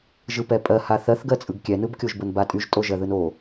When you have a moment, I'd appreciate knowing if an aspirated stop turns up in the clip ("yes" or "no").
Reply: no